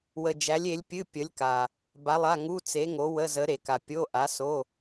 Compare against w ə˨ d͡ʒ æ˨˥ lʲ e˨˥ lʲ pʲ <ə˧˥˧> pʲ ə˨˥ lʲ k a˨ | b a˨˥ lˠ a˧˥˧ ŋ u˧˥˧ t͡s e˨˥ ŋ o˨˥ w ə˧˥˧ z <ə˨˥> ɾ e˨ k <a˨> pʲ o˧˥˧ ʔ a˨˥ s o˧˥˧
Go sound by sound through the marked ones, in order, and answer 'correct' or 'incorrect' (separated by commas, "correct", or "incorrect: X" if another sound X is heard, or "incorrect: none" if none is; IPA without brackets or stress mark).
incorrect: ɨ˧˥˧, correct, correct